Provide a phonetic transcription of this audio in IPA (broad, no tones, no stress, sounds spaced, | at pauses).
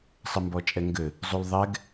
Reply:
sˤ ɘ m b ɔ t͡ʃʼ ɛ ŋ ɡ ɘ | zˤ u l ðˤ ɛ ɡ